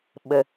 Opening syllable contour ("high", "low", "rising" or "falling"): low